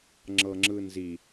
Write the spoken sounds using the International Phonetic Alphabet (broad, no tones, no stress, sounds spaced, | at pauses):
ŋ͡ǁ ɤ ŋ͡ǁ ɯ n z i